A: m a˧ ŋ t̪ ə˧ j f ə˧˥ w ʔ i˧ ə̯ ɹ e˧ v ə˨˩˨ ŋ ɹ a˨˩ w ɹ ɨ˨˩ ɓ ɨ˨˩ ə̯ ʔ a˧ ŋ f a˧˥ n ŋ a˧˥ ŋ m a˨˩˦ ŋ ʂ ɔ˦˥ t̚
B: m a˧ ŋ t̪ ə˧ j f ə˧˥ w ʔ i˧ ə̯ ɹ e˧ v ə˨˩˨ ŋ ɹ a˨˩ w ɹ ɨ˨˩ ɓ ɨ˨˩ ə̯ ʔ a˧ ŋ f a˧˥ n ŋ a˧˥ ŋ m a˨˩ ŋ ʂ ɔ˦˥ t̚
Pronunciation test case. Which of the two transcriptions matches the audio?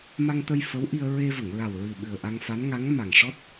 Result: B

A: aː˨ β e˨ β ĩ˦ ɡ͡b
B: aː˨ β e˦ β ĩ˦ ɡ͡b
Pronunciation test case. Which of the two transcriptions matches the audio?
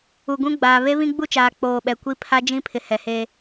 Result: B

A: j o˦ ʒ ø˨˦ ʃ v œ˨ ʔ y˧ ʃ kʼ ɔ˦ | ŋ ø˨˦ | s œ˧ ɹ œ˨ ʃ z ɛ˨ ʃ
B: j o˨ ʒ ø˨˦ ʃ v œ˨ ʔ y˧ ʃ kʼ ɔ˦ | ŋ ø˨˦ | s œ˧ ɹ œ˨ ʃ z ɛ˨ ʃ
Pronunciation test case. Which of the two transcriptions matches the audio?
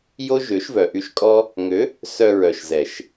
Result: A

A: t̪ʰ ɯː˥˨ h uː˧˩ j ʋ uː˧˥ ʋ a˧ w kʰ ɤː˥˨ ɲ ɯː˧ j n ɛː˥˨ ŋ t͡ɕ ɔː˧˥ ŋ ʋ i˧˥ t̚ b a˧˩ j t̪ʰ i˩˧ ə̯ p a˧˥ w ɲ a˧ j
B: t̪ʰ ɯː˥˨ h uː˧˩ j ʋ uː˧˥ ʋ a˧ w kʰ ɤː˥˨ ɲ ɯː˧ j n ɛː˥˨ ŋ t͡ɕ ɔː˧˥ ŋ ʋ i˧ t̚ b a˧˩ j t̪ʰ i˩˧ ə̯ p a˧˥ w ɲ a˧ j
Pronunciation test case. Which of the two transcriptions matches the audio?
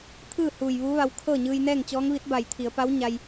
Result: A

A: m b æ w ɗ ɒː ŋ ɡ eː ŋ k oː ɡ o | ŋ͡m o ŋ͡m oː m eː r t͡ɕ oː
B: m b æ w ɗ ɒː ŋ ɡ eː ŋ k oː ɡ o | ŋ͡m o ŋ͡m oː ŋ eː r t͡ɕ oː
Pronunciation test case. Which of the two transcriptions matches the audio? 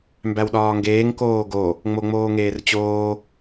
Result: B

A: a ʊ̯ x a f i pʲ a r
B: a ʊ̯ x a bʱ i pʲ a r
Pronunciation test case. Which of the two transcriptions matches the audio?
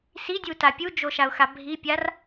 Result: B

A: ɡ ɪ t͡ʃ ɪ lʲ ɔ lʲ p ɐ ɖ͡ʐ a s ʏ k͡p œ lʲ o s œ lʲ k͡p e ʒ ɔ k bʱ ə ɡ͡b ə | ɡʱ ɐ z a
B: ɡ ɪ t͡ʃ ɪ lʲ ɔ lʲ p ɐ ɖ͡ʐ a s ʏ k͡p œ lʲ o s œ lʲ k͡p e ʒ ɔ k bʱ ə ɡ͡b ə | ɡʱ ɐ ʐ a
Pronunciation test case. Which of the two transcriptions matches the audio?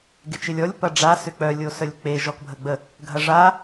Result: B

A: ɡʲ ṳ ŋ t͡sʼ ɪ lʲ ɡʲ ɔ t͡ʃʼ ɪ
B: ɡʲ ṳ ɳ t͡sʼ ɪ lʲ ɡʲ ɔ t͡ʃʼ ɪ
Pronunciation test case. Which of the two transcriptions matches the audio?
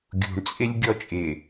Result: B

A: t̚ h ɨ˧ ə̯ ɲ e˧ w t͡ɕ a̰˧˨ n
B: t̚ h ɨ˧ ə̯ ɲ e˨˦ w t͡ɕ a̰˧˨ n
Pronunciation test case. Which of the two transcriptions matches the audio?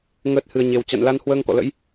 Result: A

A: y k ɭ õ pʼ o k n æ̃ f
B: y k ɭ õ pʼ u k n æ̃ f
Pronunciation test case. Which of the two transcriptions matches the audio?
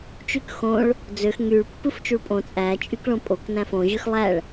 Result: A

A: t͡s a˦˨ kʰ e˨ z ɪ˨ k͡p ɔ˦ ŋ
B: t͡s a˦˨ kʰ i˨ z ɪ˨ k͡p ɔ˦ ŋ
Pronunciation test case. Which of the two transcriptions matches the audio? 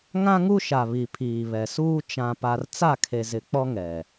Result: A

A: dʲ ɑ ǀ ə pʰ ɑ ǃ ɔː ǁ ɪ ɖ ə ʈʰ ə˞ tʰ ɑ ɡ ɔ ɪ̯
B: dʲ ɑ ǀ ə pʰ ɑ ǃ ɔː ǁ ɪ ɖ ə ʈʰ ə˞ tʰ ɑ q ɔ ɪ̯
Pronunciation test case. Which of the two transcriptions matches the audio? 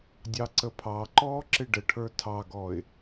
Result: A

